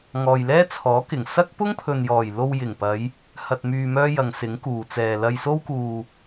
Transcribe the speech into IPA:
ŋɔː˨jlɛː˥t͡sʰɔː˨˥kɪ˨˩ŋ sɐ˥k̚ pʊ˥ŋpʰɵ˨njɔː˨˩jlo˧w jɪ˨˩ŋpɐ˨˧j | hɐ˨t̚myː˨ mœː˥jɐ˨˧ŋsɪ˨˥ŋkuː˨ t͡sɛː˨lɐ˧jso˥wkuː˧

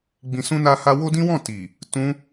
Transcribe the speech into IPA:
ɡ͡bĩ˧sũ˦na˦ ha˦ wo˦dĩ˦wɔ̃˦˨ ti˨ | tũ˧

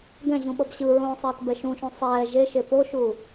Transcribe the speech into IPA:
ɡɛ̃ʑũɓʌb ɕɯɹõːsˤɛːtbɛ ʃũʃũ sˤɛː ʒeʃe poʃu

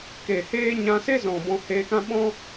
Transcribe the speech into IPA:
ke˨heː˦ ɲã˧se˦zɔ̃˨ bɔ̃˧heː˧kã˦ ɓɔ̃˦

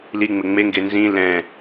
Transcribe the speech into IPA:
liŋ͡mɪ ŋ͡meŋɡe nzĩ lɛ̃

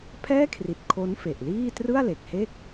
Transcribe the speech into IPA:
pʰɛː˥˩kʰri˨˩t̚ kʰo˦˥nfe˨˩ʔliː˥˩ trɯ˥˩a̯le˨˩k̚ he˥˩k̚

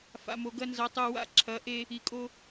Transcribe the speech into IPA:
fa̰˨mo˨ɡɐ˦ nzɐ˨˦tˤu˨wa̰˦ ǁʰɐ˨˦ʔe˦ | i˨kʼo˦

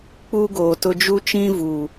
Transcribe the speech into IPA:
k͡pu˦ɡoː˨tʊ˦ d͡ʒu˦t͡ʃĩ˦vuː˨

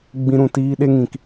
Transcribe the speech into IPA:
ɡ͡bĩ˦ɾũ˦˨ tiː˦ɗe˦ŋĩ˨k

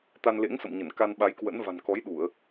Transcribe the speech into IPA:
t̪a˧nlḛ˧˥ŋsə̰˧˨mɲə˧˩n ka˧nɓa˨˦jkwə̰˧˥nva̤˨˩n kɔ˨˦jɗu˧˩˨ə̯

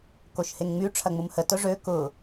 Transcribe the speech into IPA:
koʃheŋŋ͡my ʈ͡ʂʰɐŋ͡mumhə tʊʐø kʊ

